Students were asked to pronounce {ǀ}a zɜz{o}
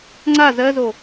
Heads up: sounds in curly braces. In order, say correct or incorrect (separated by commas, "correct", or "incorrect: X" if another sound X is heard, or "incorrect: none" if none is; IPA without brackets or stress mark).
incorrect: ŋ͡ǀ, correct